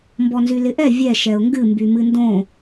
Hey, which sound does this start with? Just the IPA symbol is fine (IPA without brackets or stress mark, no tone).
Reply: m